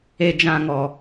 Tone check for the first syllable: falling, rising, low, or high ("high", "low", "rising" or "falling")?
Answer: low